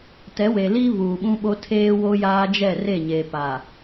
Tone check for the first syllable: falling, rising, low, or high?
rising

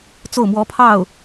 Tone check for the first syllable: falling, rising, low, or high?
falling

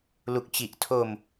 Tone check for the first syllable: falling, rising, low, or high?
low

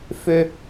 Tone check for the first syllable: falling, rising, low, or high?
high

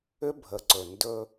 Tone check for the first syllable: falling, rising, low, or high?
high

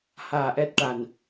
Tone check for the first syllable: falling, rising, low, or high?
low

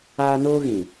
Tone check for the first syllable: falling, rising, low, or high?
high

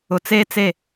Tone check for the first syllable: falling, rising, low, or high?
low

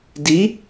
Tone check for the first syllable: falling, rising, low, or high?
rising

